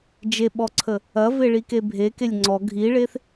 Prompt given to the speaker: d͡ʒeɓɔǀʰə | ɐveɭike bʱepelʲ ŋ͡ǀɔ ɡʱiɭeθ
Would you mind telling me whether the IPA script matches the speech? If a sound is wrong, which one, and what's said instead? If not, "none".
p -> k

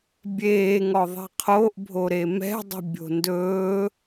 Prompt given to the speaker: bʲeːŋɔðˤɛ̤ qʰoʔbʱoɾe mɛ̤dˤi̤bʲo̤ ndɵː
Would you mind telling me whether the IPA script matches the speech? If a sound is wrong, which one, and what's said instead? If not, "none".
none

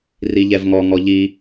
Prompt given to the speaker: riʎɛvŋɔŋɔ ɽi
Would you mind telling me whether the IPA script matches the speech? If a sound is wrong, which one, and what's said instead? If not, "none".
ɽ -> ʎ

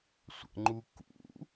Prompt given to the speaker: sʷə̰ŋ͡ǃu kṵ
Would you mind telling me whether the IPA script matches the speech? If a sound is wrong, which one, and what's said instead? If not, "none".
none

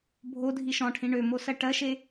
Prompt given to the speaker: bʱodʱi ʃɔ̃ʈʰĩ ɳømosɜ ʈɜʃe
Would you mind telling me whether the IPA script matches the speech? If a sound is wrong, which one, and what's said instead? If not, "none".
none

